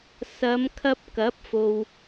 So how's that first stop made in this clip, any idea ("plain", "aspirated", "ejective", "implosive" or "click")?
aspirated